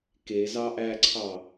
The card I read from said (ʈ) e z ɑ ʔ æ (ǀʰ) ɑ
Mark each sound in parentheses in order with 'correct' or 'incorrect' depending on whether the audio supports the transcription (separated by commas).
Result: incorrect, correct